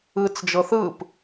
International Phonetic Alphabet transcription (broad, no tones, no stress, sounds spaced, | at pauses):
ɯ t͡s d͡ʒ ɤ θ ɯ p